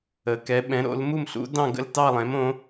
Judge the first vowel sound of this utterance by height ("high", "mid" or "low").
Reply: mid